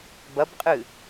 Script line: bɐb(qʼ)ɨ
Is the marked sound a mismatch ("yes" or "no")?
no